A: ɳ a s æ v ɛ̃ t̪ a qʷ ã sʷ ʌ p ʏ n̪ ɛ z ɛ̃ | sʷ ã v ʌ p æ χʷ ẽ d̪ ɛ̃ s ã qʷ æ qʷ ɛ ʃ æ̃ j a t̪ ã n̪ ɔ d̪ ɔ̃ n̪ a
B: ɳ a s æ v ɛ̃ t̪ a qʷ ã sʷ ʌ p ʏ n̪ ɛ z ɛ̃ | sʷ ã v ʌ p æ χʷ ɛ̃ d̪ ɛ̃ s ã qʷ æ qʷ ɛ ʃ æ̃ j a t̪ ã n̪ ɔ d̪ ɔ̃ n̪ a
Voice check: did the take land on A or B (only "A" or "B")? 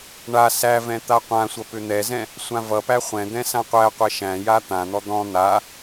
B